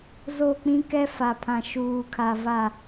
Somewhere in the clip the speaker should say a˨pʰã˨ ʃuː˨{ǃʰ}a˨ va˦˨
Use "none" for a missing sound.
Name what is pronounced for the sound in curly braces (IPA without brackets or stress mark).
kʰ